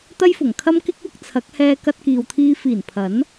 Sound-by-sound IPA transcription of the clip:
t̪ ɐ˥ j f ʊ˨˩ ŋ kʰ ɐ˥ m k ɪ˥ k̚ w ʊ˥ k̚ t͡sʰ ɐ˨˥ k̚ h ɛː˧ k ɐ˧ t̚ k iː˨ w t̪ʰ iː˧ f iː˨˩ n pʰ ɐ˨˥ n

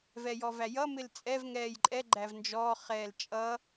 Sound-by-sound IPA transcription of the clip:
v ɛ j ɔ v æ j ʌ m ɪ l t͡sʼ ɛ v ŋ ɛː j ǃʼ ɛ ɡ͡ǃ æ v n d͡ʒ ɔː χ ɛː l t͡ʃʼ ʌ

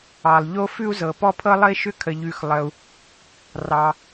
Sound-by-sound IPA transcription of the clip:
ɑ˩ lˠ ʎ o˥ f ʉ˥ u̯ z ɤ˩ p ɔ˥ pʰ ɤ˥ lˠ ə˥ i̯ ʃ ʏ˥ kʰ ə˩ ʎ ʉ˩ x lˠ ə˩ u̯ | r ɑ˩

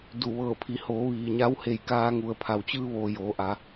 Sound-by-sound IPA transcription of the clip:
d u˧˩ ʋ ɤː˧˩ pʰ i˩˧ h oː˩˧ ʋ iː˩ ɲ a˧˥ w h e˧˩ j k aː˧ ŋ u˩ ə̯ pʰ a˩ w t͡ɕ ɯː˧ ʋ oː˩ j oː˩˧ ʔ a˩˧

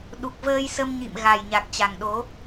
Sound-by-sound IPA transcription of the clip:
ɗ u˨˩ k̚ v əː˧ j s ə˧ m ɲ ḭ˧˨ m ɣ a˨˩ j ɲ a˨˩ k̚ t͡ɕ a˨˩ ŋ ɗ o˨˦

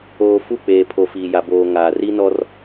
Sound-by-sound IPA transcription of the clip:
oː˨ f u˦˨ k͡p eː˨ pʰ o˨ f iː˨ j a˨ b oː˨ ŋ aː˨ r i˦ n ɔ˦ r

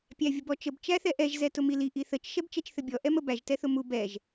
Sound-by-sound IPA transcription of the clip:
pʲ æ vʲ ə b ɔ t͡ʃ ə b t͡ʃ æ θ ɛ ʔ ɛ ʒ z ɛ t ʊ m i l i ʔ i θ ə t͡ʃ ʃ ɛ b t͡ʃ ɛ t͡ʃ θ ɘ bʲ ɔ ʔ ɛ m ə b æ ʒ t ɛ θ ʊ m u b ɛ ʒ

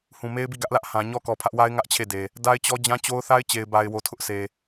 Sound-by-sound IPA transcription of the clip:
h ũ˨ m e˦ ɪ̯ b i˦˨ ɡ ä˦ ʔ l ä˦ ʔ h ã˨ ɲ ɔ˦ k ɔ˨ pʰ ä˦ ʔ w a˦ ɪ̯ ŋ ä˦ ʔ t͡ɕʰ e˦˨ d e˨ | d a˦ ɪ̯ t͡ɕ ɔ˦ d͡ʑ ã˦ t͡ɕ o˦ ʊ̯ θ a˦ ɪ̯ t͡ɕ e˨ ɪ̯ b a˨ ɪ̯ w o˨ tʰ ʊ˦ ʔ sʰ e˨

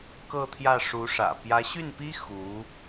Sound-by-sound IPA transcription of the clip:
k ɤ˥˧ t̪ʰ j ä˥˩ ʂ u˧˥ ʂ ä̰˨˩ p j ä˧˥ ɕ y˥˩ n p i˥ x u˧˥

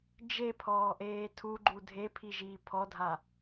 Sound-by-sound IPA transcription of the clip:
d͡ʒ e pʰ ɔː ʔ eː tʰ u ɡ͡ǃ u dʱ e pʰ i ʒ iː pʰ ɔ dʱ a

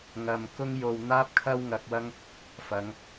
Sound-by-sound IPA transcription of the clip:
ŋ ɐ˧ m k ʊ˥ ŋ j o˧ w n̪ aː˥ p̚ kʰ ɐ˥ w ŋ ɐ˧ k̚ w ɐ˥ ŋ | f ɐ˨˧ ŋ

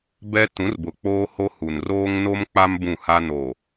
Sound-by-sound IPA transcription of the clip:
b ɛ˦ t ũ˨˦ r b ʊ˨ k͡p oː˦ h o˦ h u˨ n r oː˦ ŋ n o˦ m k͡p a˦ m b ũ˦˨ h a˦ n o˨

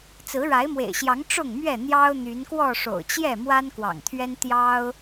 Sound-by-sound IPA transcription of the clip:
t͡s ɹ̩˨˦ ɻ a˨˦ ɪ̯ m w ḛ˨˩ ɪ̯ ɕ j ɑ˨˦ ŋ ʈ͡ʂ ʊ˥˨ ŋ m ɥ ɛ˥˨ n̪ j ɑ˦ ʊ̯ n̪ y˨˦ n k w ɔ˥˨ ʂ o̰˨˩ ʊ̯ t͡ɕ j ɛ˥˨ m w a˦ n k w ɑ̰˨˩ ŋ t̪ʰ ɥ ɛ˦ n t̪ j ɑ˦ ʊ̯

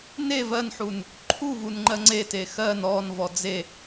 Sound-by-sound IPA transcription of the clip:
n e v ɜ n ħ u n | ǃʰ u v u n ŋ͡ǃ ɜ ŋ͡ǀ e t e x ɜ n ɔ n v ɔ d͡z e

